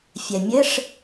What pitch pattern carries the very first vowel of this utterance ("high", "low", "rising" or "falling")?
low